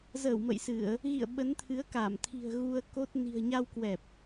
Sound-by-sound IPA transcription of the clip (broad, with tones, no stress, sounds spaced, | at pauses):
z əː˧˩ w m ə̰˧˨ j s ɨ˧˩˨ ə̯ | ɣ ḭ˧˨ ə̯ ɓ ə˨˦ n t̪ʰ ɨ˨˦ ə̯ k a˧˩ m t̪ʰ i̤˨˩ ə̯ ɣ u˧ ə̯ k o˦˥ t̚ n i̤˨˩ ə̯ ɲ a˧ w k w ɛ˨˩ p̚